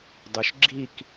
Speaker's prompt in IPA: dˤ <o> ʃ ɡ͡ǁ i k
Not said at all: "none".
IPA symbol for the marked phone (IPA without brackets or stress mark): u